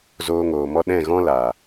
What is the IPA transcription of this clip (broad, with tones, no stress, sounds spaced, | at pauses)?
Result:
z oː˧ ŋ oː˨ m ɔ˦ ɗ ɛ̃˦˨ ɣ ɔ̃˦ l a˨